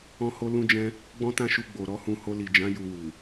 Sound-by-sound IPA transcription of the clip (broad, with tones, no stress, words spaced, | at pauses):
ɔ̃˦ho˦ lũ˦d͡ʒɛ̃˦ | ɡ͡bɔ̃˦tã˦ʃu˧ ɡ͡bo˨ ɾɔ˨˦hũ˧ ho˧li˨d͡ʒã˨˦ ju˧wu˨